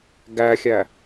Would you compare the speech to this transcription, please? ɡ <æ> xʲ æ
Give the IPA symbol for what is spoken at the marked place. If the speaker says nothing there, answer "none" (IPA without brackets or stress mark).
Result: æ